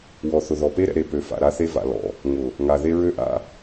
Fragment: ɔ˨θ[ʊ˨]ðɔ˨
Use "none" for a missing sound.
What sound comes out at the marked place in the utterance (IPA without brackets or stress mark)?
ʊ˨